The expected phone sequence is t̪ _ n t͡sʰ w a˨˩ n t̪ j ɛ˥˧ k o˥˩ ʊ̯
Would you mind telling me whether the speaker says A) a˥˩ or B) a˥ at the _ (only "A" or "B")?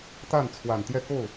A